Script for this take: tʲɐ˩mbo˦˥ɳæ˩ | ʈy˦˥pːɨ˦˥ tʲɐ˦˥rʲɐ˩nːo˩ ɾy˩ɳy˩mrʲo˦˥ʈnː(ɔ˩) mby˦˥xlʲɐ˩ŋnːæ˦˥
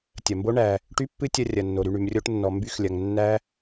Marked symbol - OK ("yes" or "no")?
yes